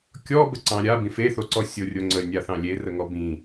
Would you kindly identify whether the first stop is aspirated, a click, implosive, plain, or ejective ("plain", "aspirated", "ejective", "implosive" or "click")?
plain